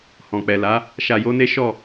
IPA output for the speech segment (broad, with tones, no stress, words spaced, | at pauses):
hɔ̃˨k͡pɛ˨la˨˦ | ʃa˧jo˦ne˦ ʃɔ˦˨